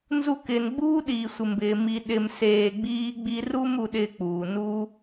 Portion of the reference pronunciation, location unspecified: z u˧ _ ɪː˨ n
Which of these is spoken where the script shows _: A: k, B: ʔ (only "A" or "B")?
A